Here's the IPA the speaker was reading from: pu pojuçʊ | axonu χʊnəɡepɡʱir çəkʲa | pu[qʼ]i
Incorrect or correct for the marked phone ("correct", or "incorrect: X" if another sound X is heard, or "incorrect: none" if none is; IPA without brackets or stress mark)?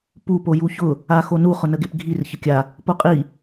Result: correct